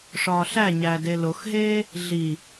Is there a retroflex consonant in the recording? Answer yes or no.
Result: yes